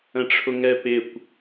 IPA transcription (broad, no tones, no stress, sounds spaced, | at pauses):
ə̃ ʈ͡ʂʰ ʊ ŋ ɛ p ɪ kʷ